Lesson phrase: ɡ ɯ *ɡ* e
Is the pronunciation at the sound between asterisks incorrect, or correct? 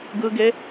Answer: correct